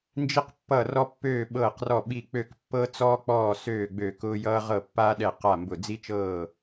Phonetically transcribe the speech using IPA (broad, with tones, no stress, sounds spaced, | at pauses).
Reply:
n d͡ʒ i˥ q pː ʌ˥˨ r ɔ˥ pː øː˥˨ ɓ ɤː˥˨ q r ɔ˥˨ ɓ i˥˨ k͡p ø˥˨ k pː ɤ˥ t͡s ɔː˥ k͡p ɔː˥˨ s øː˥˨ ɡ͡b ø˥˨ k ʊː˥ j ʌː˥ ʁ ɤ˥˨ pː aː˥ ɗ ɛ˥˨ q a˥˨ m b ʊ˥˨ d͡z i˥ t͡ʃ ɤː˥˨